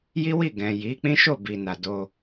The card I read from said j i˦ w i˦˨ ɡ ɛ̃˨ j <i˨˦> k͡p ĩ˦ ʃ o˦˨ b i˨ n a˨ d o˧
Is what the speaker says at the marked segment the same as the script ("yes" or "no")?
yes